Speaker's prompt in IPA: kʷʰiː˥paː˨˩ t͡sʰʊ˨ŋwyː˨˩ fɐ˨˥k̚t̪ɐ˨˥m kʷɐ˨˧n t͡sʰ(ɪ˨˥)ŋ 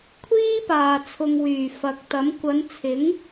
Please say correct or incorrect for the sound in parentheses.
correct